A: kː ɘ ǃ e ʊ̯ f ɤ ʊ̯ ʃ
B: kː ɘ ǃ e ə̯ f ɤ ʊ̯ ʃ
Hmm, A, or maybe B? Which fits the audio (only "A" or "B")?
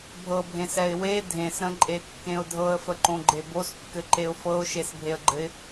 A